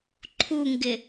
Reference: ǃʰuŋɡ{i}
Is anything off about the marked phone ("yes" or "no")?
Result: yes